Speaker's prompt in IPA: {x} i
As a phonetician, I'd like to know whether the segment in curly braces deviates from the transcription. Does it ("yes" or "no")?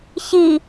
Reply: yes